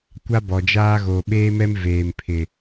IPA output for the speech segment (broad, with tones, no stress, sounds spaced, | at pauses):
kʷ a˦ b ɔ˨ d͡ʒ aː˦ ɣ oː˨ ɓ eː˦ m ɛ˦ m v eː˨ m pʰ ɪ˨